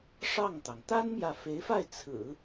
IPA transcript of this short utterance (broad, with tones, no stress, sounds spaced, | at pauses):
ʂ ɑ˥˩ ŋ t̪ ɑ˩ ŋ t̪ a˥ n m j ä˨ f e˧˥ ɪ̯ f a˥˩ ɪ̯ t͡sʰ ɹ̩˨˩˦